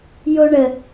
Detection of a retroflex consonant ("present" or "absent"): present